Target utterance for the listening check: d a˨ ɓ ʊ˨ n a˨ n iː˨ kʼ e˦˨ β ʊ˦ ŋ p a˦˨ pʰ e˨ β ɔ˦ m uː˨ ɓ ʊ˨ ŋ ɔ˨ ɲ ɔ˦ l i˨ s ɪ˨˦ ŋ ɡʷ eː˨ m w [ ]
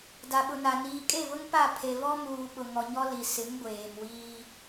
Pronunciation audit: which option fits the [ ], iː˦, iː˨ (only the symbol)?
iː˦